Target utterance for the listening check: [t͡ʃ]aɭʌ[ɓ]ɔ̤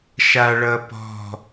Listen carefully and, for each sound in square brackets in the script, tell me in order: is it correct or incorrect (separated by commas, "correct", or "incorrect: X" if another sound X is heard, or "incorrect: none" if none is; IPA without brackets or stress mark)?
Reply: incorrect: ʃ, incorrect: p